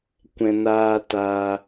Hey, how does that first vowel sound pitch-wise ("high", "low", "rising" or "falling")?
low